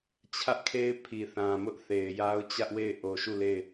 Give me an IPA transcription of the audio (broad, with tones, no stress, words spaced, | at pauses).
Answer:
t͡ɕʰä˦ʔkʰe˦ɪ̯pʰi˨ θã˨mʊ˦ʔ θe˨ɪ̯ja˦ʊ̯ t͡ɕä˦ʔwe˦˨ɪ̯ ʔo˨ʃu˦˨ le˦˨ɪ̯